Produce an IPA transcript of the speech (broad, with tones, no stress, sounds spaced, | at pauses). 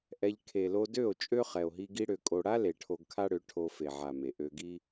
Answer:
ʔ ɛ˧ ʎ kʰ e˨ l o˧ d ø˦˨ o̯ t͡ʃʼ ø˦ χ ɛ˨ o̯ ɦ i˧ ɡ i˦ ɽ ø˧ kʼ o˧ ɽ a˦ l e˨ ʈʰ o˧ ɡ kʰ a˦ ɽ ø˨˦ ʈʰ o˧ f e˨ ʕ a˨ m e˨ ʔ ø˧ ɡ i˦